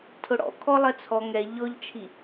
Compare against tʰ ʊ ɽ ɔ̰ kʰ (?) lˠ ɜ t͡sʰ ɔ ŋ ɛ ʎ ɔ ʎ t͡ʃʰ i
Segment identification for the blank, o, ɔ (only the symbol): ɔ